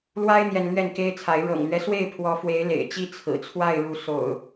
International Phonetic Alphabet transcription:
l w a˦ ɪ̯ n̪ j ɛ˨ n l ɥ ɛ˥˨ n k e˦ ɪ̯ t͡sʰ a˨˦ ɪ̯ ɻ ɤ̰˨˩ ŋ l ɥ ɛ˦ s w e˥˨ ɪ̯ pʰ w ɔ˨˦ f w e˨˦ ɪ̯ l ḛ˨˩ ɪ̯ t͡ɕ i˦ t͡sʰ ɹ̩˨˩ t͡sʰ w a˥˨ ɪ̯ ɻ u˨˦ s o̰˨˩ ʊ̯

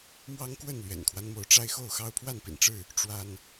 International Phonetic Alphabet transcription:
m w ɑ˦ ŋ k w ə˥˨ n l ɥ ɛ̰˨˩ n kʰ w a˦ n m o˨˦ ʊ̯ ʈ͡ʂ a˦ ɪ̯ x o˥˨ ʊ̯ x ɑ˦ ʊ̯ pʰ w a˥˨ n p ḭ˨˩ n ʈ͡ʂ ɻ̩˥˨ | ʈ͡ʂ w a˦ n

